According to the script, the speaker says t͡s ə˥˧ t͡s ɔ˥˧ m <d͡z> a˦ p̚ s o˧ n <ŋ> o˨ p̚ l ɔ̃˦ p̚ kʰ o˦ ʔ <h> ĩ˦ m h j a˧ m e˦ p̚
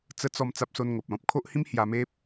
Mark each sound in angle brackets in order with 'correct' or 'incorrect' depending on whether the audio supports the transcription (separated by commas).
incorrect, correct, correct